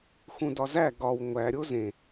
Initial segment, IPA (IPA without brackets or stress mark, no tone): x